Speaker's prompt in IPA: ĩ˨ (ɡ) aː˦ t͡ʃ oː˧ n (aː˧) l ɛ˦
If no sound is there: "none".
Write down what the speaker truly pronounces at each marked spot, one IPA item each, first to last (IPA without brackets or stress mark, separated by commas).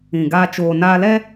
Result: ɡ, aː˧